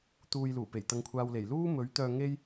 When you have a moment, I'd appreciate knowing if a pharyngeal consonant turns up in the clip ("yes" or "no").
no